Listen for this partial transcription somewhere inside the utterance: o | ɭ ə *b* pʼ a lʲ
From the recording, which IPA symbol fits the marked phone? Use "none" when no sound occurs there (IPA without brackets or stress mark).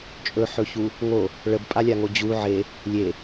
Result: b